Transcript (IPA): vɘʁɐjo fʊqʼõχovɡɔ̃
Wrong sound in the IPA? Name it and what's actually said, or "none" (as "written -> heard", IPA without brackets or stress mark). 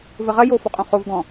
ʊ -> ɔ